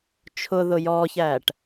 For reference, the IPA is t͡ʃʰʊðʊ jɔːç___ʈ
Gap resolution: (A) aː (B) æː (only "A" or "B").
B